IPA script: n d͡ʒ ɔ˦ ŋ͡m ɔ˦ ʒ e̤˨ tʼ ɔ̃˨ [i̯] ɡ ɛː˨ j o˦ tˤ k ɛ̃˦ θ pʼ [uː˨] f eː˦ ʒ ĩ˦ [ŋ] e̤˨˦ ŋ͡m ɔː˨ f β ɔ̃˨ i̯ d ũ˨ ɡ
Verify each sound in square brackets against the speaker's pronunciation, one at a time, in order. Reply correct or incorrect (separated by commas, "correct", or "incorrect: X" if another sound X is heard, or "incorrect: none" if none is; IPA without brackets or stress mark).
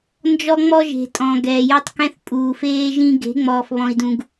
incorrect: none, correct, incorrect: ɡ